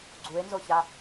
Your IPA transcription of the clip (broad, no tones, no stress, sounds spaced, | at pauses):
ɡ͡ǀ u e̯ n z o ç a